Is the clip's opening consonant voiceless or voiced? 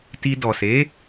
voiceless